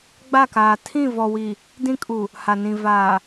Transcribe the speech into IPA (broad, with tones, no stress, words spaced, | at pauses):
ɡ͡ba˦˨kaː˨ tʰĩ˦˨vɔ˨wi˨ | dĩ˦ kʼu˨ | ha˨nĩ˨ vaː˨